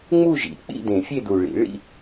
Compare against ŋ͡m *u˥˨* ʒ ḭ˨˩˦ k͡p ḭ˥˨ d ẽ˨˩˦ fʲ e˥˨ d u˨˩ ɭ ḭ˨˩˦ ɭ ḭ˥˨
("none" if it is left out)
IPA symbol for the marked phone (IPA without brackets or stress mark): u˥˨